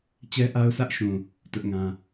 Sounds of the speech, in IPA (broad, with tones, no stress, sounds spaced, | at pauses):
t͡ɕ ɛ˦ ʔ a˦ ʊ̯ s ä˦ ʔ ʃ ũ˨ | t ʊ˦ ʔ ŋ ã˦